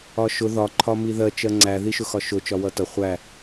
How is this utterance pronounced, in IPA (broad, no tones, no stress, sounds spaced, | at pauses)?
ɒ ʃ ʊ ð ɒ ǃʰ ɒ m i ð ɜ t͡ʃ ɜ ŋ͡ǀ æ ð i ʃ ʊ x ɒ ʃ ʊ t͡ʃ ɒ w ʌ t ʌ χʷ æ